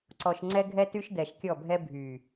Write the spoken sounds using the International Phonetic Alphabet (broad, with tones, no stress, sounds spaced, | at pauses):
ǀ ɔ˨ ʃ ŋ͡ǀ ɛ˦ ɡʱ ɛ˦ t y˦ ʃ d̪ ɛ˨ ʃ kʲ ɔ˦˨ bʱ ɛ˦ bʱ y˨